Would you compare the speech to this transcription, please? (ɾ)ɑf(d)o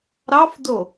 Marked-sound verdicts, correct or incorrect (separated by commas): correct, correct